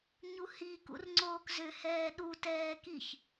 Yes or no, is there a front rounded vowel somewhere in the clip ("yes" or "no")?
yes